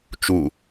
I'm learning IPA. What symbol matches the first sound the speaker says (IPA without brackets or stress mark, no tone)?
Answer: t͡ʃ